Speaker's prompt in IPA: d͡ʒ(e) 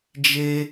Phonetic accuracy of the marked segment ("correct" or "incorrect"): correct